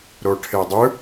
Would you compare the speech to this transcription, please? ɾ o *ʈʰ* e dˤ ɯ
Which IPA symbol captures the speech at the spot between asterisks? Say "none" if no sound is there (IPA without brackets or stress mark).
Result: ʈʰ